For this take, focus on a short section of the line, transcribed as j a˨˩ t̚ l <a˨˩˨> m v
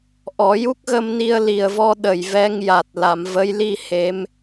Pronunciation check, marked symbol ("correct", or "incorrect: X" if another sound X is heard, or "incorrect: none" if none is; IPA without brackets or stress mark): correct